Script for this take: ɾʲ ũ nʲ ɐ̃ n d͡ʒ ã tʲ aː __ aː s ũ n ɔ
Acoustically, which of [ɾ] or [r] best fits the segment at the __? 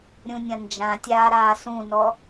ɾ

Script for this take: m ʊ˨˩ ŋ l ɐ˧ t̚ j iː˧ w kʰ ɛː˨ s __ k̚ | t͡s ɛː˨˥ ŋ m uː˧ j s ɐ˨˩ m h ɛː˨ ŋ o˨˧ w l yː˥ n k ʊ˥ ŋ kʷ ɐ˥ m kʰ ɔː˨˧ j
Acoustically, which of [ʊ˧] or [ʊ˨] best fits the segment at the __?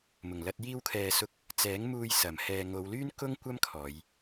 ʊ˧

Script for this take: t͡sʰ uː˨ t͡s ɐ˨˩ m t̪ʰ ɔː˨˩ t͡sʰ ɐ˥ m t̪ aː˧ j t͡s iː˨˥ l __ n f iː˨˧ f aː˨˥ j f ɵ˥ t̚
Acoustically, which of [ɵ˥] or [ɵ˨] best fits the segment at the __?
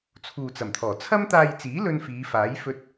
ɵ˥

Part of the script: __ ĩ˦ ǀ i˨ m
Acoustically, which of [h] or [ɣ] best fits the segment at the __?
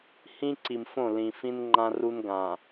h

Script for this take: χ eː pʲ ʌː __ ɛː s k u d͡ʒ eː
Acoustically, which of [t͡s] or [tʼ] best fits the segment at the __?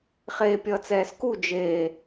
t͡s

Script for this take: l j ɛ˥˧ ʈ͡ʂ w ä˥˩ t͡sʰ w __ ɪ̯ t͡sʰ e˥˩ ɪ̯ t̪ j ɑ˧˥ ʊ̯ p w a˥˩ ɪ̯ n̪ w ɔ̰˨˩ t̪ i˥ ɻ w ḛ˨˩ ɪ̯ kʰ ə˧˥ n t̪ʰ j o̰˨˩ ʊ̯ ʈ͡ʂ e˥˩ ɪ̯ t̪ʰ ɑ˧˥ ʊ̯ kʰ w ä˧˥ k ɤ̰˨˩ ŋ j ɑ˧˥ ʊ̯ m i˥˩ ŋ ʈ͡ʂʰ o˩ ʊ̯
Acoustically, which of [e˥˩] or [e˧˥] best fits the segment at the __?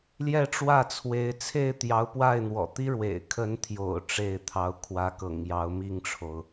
e˧˥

